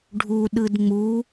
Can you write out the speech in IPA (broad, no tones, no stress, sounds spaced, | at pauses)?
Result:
ɖʱ u ɗ ɯ d ŋ͡m u